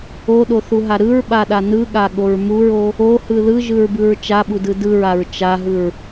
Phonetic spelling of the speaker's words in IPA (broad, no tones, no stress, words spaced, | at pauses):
oɗoθuɦa ɾɯɹɓaɗa nɯɠaɠoɹ muɹo | ohɯ ðɯʒɯɹbɯɹ t͡ʃaɓudɯ dɯɹaɹ t͡ʃaɦɯɹ